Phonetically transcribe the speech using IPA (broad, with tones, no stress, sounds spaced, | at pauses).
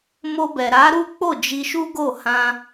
m o˧ b ɛ˨ ɾ a˨˦ ɾ u˦ k͡p o˦˨ d͡ʒ i˧ ʃ u˦ ɡ o˦˨ h ã˧